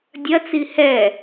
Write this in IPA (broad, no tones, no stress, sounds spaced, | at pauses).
dʲ ɐ t͡s i h ɛ